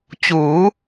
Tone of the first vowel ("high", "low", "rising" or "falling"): rising